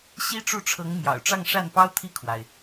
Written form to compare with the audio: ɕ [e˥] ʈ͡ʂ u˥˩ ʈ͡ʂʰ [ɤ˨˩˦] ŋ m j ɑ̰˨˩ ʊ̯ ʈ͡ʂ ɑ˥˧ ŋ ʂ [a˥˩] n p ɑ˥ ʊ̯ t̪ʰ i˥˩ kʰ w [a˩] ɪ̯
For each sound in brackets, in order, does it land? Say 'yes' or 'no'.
no, no, yes, yes

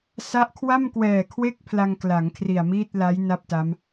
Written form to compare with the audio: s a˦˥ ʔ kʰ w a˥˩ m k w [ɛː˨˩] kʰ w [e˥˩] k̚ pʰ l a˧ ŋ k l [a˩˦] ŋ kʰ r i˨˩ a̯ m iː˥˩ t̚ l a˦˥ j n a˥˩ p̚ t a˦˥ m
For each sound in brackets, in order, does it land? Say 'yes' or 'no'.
yes, yes, yes

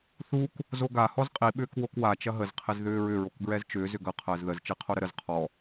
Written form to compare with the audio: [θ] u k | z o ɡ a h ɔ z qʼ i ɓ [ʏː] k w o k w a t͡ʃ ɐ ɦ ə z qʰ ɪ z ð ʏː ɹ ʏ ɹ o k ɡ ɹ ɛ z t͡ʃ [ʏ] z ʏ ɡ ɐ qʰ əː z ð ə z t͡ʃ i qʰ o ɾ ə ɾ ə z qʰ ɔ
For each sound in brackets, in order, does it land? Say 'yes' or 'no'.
yes, yes, no

